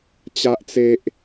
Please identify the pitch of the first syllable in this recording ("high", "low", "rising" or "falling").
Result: high